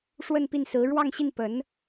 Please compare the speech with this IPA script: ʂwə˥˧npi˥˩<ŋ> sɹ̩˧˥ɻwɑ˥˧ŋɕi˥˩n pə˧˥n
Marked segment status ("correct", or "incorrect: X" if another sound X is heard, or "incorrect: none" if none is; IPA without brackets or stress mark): incorrect: n